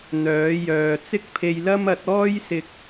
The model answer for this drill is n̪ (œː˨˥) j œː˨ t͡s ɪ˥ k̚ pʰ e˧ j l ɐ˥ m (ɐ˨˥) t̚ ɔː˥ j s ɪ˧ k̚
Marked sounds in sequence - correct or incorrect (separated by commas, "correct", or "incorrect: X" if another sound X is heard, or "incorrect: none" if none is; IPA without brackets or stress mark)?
correct, correct